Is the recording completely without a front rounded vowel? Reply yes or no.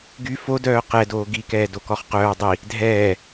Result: no